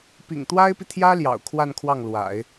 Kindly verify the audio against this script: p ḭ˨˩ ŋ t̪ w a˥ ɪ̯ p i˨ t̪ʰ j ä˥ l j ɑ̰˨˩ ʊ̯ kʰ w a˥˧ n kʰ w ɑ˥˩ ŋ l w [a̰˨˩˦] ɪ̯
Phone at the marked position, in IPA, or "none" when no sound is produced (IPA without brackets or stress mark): a̰˨˩˦